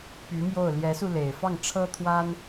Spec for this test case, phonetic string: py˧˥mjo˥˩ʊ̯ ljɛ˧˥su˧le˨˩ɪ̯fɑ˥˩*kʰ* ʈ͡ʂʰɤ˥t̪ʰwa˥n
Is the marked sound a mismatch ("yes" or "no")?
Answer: yes